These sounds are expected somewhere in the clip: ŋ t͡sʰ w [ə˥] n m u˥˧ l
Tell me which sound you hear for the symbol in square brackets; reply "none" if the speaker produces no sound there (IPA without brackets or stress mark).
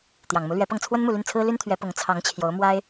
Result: ə˥